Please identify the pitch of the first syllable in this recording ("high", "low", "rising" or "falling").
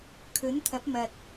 rising